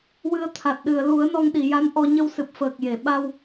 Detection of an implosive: present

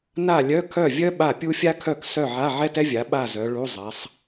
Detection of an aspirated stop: present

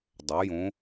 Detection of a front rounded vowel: present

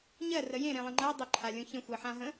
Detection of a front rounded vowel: absent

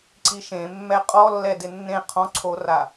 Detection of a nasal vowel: present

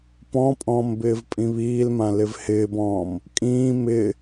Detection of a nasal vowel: present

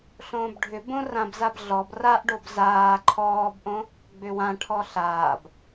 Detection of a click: present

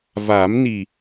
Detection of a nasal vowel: absent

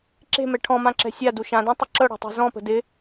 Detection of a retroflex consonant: present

